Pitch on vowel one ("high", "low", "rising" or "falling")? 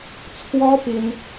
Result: high